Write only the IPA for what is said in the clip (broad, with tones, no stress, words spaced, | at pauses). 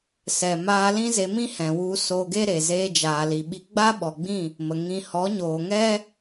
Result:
sɛ˨maː˧ lĩ˦ze˧mĩ˦hɛ̃˨ wu˧so˧ɡe˦ɾe˨ zeː˧d͡ʒaː˨li˨ɓi˧ ɡ͡ba˦ ɓɔ˨ɡ͡bĩ˦˨ | mə˨ ŋĩ˨ hɔ˨˦ɲoː˨ŋɛ˦